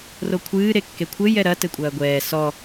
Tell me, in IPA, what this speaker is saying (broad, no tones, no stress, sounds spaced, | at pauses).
r o kʷʰ ɨː ɾ e kː e kʷʰ ɘ j ɛ ɾ ɐ t ɘ kʷʼ ɐː ɡʷ ɛː s ɔ